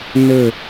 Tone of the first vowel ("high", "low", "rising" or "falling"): falling